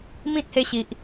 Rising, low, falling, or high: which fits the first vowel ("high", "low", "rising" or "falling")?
high